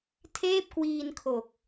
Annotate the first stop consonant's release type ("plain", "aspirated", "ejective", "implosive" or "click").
aspirated